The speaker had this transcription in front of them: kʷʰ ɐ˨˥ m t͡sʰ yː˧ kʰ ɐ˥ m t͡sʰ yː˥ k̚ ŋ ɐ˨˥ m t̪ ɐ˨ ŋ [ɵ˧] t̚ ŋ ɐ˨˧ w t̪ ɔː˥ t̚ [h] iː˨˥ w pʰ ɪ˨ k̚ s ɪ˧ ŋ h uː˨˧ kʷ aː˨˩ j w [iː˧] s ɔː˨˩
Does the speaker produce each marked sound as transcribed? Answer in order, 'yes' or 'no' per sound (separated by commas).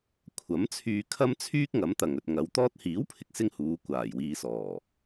yes, yes, no